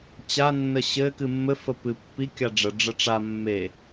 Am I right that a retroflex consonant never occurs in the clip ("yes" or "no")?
no